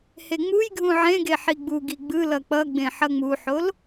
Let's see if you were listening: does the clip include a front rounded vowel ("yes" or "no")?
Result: no